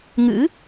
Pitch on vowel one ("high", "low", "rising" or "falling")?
rising